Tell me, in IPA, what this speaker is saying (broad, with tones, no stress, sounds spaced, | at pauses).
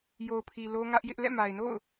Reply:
j o˨ ʊ̯ pʰ i˨ l o˦ ŋ ä˦ ʔ j ɪ˦ ʔ l ɛ̰˦˨ m a˨ ɪ̯ n o̰˦˨ ʊ̯